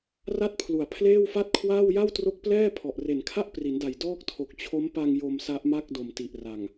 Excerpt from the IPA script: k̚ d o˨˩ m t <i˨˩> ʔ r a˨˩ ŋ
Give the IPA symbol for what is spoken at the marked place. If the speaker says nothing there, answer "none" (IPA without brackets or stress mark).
i˨˩